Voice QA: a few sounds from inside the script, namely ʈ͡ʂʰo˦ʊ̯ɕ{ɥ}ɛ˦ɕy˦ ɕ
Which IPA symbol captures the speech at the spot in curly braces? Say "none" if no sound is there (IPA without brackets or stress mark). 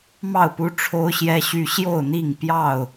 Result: j